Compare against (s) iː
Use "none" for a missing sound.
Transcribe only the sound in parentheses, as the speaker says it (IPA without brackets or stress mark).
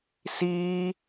s